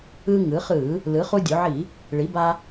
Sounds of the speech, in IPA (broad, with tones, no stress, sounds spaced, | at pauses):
ɯ˧ ŋ ɯ˩˧ χ ɯ˧˩˧ | l ɯ˩˧ χ u˧ dʲ o˩˧ ʕ i˧˩˧ | ɭ i˩˧ b a˧